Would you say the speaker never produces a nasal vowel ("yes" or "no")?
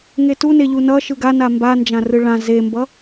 no